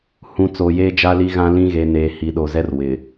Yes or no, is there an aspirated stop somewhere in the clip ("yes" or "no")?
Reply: no